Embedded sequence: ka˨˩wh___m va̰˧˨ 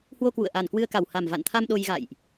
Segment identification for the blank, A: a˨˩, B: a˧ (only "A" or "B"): A